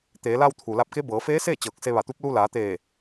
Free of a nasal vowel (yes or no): yes